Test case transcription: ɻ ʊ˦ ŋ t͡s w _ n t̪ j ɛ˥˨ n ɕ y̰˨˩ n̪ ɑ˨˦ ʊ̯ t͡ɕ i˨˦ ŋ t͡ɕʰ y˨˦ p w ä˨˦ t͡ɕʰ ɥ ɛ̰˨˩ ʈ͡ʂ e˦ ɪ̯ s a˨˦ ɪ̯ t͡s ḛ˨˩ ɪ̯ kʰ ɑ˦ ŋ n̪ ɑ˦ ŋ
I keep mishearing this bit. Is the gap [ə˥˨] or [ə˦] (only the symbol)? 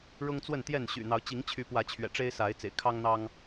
ə˥˨